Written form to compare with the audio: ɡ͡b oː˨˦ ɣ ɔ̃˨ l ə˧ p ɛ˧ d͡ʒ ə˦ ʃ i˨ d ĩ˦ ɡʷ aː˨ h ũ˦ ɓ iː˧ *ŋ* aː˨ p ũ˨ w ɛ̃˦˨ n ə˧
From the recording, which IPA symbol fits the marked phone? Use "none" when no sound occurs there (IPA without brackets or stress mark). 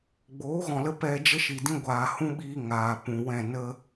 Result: ŋ